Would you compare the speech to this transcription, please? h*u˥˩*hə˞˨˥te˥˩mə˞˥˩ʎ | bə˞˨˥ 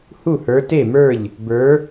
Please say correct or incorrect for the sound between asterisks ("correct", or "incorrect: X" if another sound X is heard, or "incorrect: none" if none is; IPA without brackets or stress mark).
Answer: correct